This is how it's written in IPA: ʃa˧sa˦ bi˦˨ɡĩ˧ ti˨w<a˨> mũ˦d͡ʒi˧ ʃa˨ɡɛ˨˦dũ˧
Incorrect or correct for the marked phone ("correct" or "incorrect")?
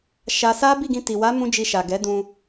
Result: incorrect